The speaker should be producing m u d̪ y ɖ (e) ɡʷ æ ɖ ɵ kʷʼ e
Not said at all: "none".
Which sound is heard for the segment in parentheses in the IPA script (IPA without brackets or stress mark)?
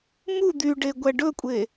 e